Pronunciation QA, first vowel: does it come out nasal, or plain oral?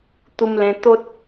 oral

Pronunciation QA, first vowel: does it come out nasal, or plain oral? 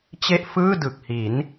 oral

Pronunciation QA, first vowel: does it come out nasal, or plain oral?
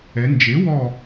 oral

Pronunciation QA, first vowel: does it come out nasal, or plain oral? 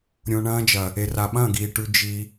nasal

